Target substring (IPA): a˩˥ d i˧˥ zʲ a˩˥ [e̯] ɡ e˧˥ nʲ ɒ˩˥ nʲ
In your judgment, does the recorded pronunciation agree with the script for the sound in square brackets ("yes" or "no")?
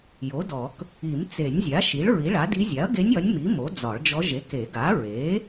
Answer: no